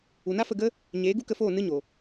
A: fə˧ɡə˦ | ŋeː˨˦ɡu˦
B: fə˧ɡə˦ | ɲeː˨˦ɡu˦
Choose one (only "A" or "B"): B